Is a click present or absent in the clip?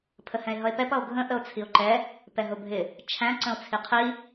present